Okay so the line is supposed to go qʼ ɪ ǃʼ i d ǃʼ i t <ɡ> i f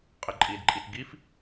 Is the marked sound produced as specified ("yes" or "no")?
yes